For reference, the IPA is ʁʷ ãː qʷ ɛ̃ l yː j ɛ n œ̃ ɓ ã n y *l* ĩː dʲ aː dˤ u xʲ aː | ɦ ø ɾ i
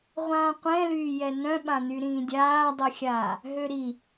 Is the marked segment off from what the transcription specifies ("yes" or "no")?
yes